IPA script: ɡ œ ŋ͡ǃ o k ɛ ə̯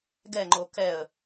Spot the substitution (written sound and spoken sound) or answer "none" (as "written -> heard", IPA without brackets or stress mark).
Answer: œ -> ɛ